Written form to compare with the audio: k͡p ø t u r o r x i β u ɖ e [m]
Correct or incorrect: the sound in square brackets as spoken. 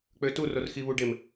correct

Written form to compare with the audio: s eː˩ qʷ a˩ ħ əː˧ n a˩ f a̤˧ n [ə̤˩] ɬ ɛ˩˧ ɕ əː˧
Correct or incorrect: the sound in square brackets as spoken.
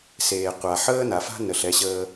incorrect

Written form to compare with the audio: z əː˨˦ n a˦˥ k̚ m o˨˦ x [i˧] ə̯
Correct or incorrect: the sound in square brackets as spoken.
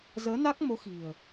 incorrect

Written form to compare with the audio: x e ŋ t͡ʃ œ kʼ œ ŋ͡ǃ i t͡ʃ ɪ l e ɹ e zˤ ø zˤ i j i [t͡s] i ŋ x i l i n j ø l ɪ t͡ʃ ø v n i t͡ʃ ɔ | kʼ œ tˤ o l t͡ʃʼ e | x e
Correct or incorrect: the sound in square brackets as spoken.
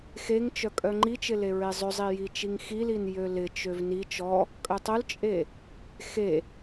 incorrect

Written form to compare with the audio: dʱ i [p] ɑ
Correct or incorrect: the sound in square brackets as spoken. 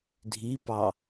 correct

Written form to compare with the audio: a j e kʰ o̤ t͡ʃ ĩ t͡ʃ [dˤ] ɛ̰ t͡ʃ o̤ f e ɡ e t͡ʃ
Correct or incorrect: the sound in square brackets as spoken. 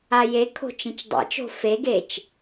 correct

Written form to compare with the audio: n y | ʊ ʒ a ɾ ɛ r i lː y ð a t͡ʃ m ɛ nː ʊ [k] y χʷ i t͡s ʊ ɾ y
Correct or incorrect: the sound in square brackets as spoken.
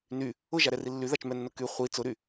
correct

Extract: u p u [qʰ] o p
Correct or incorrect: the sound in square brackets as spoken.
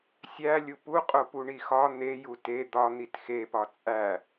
incorrect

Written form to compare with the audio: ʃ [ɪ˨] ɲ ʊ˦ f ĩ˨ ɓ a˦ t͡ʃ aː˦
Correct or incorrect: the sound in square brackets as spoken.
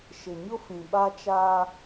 correct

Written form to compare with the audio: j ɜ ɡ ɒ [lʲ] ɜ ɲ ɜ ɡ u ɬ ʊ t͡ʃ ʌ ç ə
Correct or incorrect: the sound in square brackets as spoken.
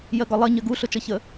incorrect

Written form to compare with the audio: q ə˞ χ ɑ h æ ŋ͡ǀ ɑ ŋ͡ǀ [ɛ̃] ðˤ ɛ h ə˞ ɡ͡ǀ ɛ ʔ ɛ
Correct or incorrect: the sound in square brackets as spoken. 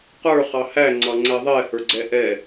incorrect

